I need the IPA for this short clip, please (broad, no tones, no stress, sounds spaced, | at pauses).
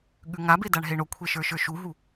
ɠ ʉ ŋ a b e d a ɳ ɦ e ɳ o kʷʰ e ʃ ə˞ ʃ ə˞ ʃ u ɦ u